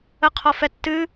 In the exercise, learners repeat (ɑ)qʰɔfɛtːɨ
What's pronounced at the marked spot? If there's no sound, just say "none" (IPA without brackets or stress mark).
ə